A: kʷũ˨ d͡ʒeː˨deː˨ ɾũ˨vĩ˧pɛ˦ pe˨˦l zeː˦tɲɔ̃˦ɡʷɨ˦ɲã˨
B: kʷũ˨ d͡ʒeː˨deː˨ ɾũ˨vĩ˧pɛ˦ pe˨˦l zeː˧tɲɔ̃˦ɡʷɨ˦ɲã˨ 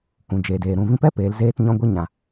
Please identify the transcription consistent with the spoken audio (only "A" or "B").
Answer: A